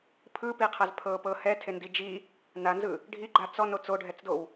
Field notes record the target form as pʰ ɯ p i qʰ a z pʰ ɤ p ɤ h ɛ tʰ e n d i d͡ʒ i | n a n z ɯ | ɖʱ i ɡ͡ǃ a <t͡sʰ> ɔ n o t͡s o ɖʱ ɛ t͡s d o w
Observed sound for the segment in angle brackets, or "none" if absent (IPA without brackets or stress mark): t͡s